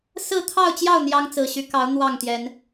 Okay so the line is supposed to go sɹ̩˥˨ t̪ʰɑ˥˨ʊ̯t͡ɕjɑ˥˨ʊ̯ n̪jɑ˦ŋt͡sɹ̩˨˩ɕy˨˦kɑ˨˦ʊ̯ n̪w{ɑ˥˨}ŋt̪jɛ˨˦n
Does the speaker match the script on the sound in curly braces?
yes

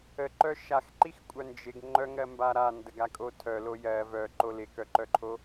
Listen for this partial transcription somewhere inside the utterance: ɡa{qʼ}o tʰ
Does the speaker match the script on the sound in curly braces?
no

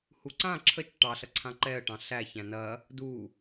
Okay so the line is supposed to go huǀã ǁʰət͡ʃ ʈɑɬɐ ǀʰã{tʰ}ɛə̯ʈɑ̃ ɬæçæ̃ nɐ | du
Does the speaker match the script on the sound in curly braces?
no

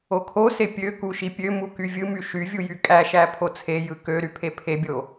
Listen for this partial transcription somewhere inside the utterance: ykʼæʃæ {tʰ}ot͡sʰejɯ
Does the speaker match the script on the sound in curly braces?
no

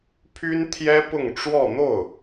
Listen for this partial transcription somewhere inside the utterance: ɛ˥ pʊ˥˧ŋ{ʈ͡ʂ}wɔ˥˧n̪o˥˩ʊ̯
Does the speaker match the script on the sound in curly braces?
yes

